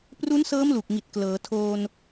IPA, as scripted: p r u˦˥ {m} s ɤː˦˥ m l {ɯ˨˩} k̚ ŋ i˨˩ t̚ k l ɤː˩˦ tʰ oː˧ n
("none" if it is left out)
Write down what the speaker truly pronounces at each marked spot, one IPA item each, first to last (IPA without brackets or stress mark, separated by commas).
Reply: n, u˨˩